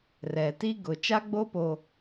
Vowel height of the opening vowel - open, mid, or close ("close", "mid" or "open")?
mid